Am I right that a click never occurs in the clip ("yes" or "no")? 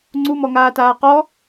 no